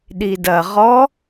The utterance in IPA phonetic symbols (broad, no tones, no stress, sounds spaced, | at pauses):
ɗ i d ɐ ʁ ɔ